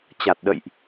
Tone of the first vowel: low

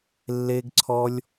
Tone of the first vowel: high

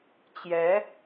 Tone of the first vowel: rising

